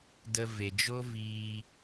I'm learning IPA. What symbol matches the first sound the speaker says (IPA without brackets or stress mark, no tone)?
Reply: d